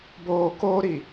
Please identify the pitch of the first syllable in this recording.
low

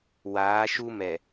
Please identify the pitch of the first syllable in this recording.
rising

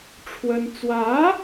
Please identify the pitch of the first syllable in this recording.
high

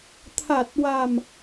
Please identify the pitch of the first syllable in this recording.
low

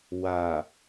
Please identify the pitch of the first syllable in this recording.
low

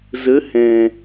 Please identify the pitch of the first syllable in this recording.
rising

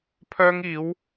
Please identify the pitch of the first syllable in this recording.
high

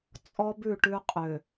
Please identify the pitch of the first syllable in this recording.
high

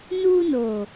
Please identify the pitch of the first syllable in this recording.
high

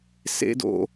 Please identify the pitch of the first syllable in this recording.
high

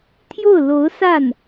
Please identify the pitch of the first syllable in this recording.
falling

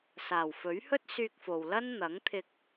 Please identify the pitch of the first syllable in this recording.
low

